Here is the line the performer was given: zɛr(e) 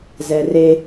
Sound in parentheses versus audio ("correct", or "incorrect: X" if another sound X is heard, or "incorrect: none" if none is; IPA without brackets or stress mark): correct